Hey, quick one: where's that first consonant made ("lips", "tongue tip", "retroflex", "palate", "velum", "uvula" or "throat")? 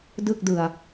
tongue tip